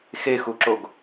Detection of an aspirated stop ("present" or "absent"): absent